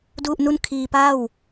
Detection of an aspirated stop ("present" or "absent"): present